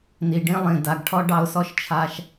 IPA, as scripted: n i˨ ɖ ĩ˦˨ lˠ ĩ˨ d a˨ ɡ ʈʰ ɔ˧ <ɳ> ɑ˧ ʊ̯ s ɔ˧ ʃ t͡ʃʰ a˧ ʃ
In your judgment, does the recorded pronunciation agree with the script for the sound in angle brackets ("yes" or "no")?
no